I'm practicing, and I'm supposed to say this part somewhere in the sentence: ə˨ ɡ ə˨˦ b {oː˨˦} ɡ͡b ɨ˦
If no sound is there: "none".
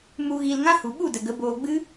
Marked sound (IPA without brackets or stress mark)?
oː˧